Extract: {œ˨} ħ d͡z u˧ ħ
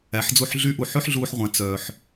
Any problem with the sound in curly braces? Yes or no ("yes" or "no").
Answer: yes